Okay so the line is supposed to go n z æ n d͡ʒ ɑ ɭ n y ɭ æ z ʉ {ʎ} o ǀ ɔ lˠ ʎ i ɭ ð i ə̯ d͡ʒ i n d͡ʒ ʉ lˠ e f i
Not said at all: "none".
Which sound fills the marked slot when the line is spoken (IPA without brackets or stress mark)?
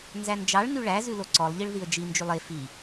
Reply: l